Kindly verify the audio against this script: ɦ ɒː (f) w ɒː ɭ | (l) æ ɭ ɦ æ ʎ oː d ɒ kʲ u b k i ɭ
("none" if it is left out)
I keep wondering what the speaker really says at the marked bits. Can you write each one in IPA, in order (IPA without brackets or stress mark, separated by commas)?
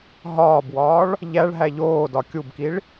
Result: b, ʎ